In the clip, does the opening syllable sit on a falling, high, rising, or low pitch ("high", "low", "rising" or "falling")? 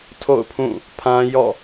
falling